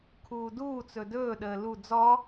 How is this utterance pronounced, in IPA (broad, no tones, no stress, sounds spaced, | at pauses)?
kʰ uː d uː t͡s ɵ d ɵː ɗ əː l u d͡z ɔ